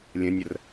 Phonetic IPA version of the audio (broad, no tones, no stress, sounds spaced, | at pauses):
lʲ ə̃ nʲ ə r